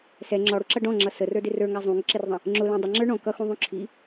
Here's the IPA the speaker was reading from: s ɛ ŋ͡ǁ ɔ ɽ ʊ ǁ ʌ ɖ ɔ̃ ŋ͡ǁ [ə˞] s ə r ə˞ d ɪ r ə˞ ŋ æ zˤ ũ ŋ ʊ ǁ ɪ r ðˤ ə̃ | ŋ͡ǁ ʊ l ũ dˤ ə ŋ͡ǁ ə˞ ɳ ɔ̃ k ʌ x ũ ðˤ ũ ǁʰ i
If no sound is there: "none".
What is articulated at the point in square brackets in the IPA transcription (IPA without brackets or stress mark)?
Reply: ʌ